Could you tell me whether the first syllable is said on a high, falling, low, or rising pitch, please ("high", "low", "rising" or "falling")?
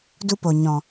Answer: high